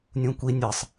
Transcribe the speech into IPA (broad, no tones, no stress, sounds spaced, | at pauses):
nʲ ũ kʷ i nʲ ɨ sˤ